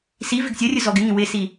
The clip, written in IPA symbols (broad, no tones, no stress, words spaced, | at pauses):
si vɪɡsʲʌrʲʊ zɔɡɪŋĩ wɪsi